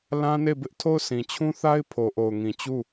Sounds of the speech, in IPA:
lã˦ne˦˨bɪ˦ʔ tʰo˦˨ʊ̯sĩ˨t͡ɕʰũ˦θa˦ɪ̯ pʰo˨ʔo˨ʊ̯ŋĩ˨ t͡ɕu˦˨

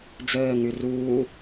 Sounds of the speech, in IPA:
d͡zəː ŋʉruː

